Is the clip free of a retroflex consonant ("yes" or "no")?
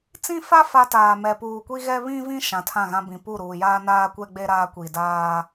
yes